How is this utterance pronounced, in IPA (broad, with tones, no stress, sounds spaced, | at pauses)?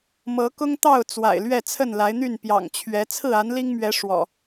m ɤ˨˦ k ʊ˦ ŋ t̪ ɑ˥˨ ʊ̯ t͡s w a̰˨˩ ɪ̯ l ɥ ɛ˥˨ t͡sʰ ə˥˨ n l a˨˦ ɪ̯ n̪ y˥˨ n p j ɑ̰˨˩ ŋ t͡ɕʰ ɥ ɛ˨˦ t͡sʰ ɹ̩˥˨ a˨˦ n l i˦ ŋ m ɥ ɛ˨˦ ʂ w ɔ̰˨˩